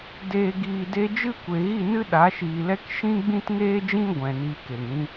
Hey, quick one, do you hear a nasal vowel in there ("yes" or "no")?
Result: yes